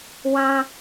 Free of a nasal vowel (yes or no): no